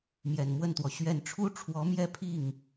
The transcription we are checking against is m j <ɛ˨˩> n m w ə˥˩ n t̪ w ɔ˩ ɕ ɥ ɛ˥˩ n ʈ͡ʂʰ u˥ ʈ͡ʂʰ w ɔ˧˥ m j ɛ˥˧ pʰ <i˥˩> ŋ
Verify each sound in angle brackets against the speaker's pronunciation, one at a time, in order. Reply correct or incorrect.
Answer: correct, correct

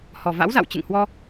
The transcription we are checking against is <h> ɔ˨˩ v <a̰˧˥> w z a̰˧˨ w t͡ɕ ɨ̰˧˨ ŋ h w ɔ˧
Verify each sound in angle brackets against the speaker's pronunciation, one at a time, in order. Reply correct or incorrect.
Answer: correct, correct

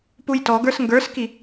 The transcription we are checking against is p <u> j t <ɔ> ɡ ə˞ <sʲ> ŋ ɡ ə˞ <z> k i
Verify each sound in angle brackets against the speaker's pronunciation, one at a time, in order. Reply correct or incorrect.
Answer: correct, correct, incorrect: s, incorrect: s

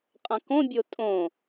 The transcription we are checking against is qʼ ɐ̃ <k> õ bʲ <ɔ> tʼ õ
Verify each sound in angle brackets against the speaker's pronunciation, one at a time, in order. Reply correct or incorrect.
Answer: correct, incorrect: o

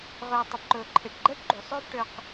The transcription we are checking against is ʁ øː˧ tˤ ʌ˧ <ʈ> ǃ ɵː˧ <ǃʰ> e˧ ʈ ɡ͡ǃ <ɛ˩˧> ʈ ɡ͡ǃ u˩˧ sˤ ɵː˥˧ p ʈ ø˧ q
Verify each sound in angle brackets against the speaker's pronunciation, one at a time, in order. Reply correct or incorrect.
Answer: incorrect: p, correct, incorrect: ɛ˥

